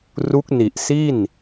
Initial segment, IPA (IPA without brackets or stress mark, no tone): r